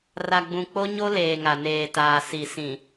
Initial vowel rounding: unrounded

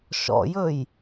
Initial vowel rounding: rounded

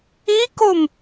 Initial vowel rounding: unrounded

